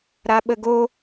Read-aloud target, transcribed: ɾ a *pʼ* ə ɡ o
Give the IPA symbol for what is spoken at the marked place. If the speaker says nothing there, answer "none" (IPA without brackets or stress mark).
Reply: ɓ